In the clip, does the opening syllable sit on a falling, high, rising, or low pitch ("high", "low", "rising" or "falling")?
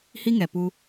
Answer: high